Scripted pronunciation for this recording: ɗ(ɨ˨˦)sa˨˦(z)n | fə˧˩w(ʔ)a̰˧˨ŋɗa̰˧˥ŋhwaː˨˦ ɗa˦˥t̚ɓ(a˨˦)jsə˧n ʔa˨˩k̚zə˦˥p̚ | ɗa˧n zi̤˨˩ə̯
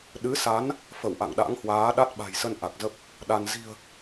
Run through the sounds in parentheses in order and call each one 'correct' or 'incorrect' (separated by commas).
correct, incorrect, correct, incorrect